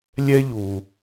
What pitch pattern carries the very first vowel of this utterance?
high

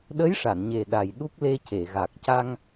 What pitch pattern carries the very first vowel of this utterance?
rising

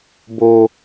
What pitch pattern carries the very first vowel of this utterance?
low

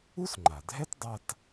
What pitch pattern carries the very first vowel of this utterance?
high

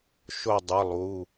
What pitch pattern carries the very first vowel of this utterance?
falling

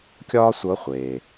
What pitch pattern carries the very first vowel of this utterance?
high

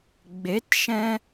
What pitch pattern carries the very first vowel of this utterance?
rising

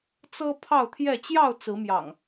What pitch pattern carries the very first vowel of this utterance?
high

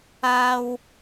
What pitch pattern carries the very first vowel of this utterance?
low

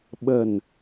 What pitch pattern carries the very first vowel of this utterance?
low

